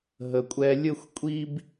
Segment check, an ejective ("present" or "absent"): present